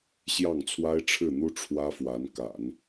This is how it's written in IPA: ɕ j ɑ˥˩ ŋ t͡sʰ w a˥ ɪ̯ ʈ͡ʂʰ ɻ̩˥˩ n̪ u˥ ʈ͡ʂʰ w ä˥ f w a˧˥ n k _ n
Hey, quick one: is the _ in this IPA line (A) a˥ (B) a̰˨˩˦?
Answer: B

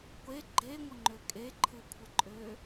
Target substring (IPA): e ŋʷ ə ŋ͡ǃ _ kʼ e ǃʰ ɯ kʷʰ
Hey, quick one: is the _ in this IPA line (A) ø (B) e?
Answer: A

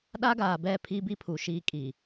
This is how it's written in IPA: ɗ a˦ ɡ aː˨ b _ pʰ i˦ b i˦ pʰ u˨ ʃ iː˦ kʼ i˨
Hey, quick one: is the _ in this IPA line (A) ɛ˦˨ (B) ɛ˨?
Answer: A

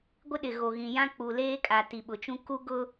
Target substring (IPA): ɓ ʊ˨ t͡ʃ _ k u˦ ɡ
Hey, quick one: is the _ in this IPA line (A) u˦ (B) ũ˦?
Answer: B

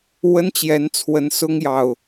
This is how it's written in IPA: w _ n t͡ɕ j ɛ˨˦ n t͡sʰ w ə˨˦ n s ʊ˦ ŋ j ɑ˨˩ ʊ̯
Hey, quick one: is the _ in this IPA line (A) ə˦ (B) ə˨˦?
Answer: A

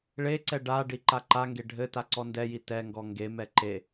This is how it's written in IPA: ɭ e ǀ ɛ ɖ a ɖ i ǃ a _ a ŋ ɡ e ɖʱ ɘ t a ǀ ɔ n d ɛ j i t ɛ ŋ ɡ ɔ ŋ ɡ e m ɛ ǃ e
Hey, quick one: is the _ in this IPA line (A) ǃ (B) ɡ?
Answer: A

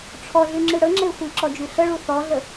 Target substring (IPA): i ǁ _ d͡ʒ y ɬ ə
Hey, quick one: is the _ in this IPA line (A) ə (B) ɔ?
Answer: B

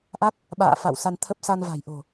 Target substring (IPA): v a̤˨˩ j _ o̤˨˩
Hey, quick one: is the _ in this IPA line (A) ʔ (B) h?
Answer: A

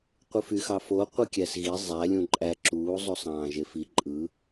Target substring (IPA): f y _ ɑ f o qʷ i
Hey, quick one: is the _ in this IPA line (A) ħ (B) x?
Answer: B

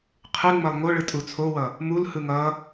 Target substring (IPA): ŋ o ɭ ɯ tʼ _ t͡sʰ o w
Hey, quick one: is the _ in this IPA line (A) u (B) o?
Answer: A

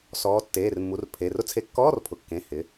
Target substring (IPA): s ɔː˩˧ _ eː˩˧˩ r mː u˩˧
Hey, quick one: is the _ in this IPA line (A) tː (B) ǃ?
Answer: A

